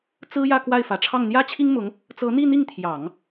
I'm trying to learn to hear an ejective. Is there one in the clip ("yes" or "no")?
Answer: no